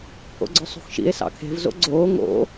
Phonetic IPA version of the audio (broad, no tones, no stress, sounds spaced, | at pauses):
pʰ o̰ ɡ͡ǀ œ sˤ ṳ x ʃ ḭ e̯ s ɑ̰ kʰ e̤ v z o̰ ɡ͡ǀ oː ŋ o̰